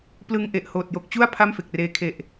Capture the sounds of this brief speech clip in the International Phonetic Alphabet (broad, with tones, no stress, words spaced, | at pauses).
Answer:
plɯ˧ŋʔe˨˩ʔhoː˨˩t̚ jo˨˩k̚t͡ɕu˥˩a̯ pʰa˥˩mfe˨˩k̚reː˧ kʰe˨˩ʔ